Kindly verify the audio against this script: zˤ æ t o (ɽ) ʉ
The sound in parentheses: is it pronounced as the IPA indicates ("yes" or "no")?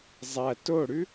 yes